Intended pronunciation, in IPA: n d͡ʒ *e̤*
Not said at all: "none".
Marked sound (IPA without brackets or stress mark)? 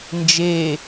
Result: e